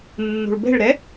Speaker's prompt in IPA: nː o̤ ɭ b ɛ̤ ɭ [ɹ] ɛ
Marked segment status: incorrect: ɾ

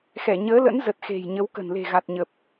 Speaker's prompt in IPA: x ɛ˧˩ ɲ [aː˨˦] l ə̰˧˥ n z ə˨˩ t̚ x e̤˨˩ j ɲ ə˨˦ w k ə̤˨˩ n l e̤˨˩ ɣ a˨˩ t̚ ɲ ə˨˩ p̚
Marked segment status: incorrect: əː˨˦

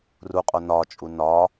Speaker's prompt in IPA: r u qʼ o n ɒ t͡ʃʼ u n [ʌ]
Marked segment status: incorrect: ɒ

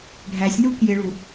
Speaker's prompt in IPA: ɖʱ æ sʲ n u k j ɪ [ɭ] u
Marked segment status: correct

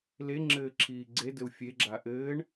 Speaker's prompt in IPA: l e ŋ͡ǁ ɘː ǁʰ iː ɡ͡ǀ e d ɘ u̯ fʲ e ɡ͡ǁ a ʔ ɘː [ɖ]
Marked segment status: incorrect: ɳ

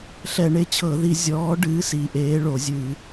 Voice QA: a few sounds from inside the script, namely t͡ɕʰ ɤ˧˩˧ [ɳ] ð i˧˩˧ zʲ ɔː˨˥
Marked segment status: incorrect: none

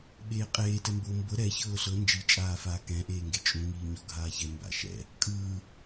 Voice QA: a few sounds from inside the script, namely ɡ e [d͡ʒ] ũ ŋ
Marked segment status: incorrect: t͡ʃʼ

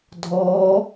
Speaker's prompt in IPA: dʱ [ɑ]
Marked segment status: incorrect: ɔ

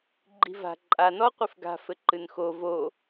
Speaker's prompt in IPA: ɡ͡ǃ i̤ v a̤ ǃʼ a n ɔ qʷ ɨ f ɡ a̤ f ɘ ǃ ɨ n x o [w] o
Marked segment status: incorrect: v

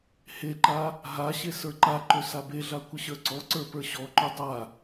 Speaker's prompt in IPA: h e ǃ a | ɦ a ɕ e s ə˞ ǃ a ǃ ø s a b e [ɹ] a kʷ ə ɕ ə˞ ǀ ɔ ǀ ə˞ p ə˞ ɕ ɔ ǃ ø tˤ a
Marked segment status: incorrect: ɮ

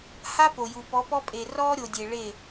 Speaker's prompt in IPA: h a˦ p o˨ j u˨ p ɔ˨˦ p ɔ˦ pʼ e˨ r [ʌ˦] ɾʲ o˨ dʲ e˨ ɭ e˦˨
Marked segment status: incorrect: ɔ˦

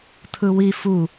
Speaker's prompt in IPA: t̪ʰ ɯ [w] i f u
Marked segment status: correct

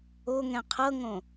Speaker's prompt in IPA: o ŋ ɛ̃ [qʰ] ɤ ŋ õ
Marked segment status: correct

